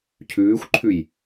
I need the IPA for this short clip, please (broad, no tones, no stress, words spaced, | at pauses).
cʰʉːxʷǃʰʉj